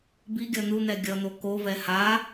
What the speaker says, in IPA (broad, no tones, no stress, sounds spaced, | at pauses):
b i ɡʲ ʌ n̪ u n̪ ɛ ɡʲ ʌ n̪ o k o v ɛ h a